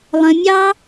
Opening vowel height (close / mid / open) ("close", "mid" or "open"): mid